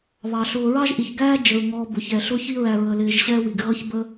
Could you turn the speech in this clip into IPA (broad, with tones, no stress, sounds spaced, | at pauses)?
β ɑ˩ ɬ ʊː˨ ɹ ɑ˥ ʒ ʔ i˩ ç ɡ æː˥ d͡ʒ ə˩ ɹ ŋ ɔː˨ b ʊ˩ ç ɛ˩ ɬ ʊ˦ ç i˦ ɹ æ˨ ɹ ə˨ l ɪː˨ ʒ ɕ ɛː˦ w i˩ ɡ ɣ ʌ˦ ç b ə˦